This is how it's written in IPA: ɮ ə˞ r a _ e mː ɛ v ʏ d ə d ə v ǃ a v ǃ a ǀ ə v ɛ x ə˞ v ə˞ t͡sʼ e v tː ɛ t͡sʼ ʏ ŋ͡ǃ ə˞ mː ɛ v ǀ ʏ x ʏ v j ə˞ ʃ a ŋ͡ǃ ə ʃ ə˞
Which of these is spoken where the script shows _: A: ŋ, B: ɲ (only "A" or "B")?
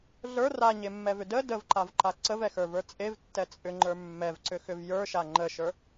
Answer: B